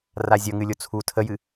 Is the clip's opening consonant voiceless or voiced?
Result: voiced